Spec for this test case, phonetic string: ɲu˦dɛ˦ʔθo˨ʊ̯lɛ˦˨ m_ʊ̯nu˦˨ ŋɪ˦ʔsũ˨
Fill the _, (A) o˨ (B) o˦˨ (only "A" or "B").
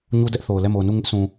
A